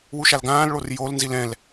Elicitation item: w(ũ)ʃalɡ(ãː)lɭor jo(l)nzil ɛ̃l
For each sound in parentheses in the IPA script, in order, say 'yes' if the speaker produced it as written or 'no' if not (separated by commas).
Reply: no, yes, yes